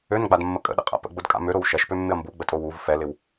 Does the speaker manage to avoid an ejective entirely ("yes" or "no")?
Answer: no